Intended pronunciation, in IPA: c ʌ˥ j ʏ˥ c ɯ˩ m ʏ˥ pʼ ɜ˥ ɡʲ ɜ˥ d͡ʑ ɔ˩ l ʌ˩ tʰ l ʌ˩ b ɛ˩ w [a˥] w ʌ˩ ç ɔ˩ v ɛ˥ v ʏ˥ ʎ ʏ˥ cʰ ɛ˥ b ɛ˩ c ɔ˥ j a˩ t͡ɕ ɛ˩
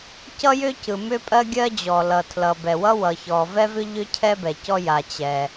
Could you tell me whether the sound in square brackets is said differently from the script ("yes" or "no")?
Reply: yes